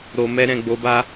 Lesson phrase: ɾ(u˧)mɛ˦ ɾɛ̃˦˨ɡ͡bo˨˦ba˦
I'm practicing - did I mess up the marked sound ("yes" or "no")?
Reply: yes